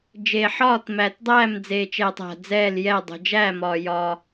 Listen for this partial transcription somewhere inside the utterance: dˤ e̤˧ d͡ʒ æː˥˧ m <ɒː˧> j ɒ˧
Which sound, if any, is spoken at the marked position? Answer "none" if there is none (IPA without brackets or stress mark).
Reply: ɒː˧